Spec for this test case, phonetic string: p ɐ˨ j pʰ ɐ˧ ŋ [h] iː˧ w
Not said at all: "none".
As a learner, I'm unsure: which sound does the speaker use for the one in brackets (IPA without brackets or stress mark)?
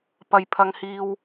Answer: h